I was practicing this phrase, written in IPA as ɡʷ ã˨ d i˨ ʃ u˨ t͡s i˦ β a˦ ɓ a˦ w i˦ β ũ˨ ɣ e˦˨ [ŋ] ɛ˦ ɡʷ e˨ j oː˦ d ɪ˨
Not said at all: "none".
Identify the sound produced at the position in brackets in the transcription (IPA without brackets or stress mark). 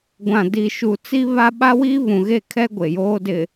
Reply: kʰ